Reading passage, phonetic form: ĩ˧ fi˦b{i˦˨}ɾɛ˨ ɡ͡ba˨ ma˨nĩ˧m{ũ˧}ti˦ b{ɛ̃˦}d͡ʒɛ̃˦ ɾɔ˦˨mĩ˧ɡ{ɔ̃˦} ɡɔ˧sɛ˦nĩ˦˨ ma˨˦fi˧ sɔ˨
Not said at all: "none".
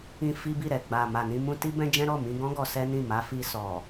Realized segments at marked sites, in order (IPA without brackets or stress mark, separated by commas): i˦˨, ũ˧, ɛ̃˦, ɔ̃˦